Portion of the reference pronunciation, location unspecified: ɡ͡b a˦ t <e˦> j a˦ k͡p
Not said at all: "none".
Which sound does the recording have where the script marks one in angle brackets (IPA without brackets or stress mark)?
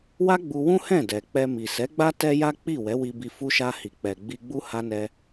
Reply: ɛ˦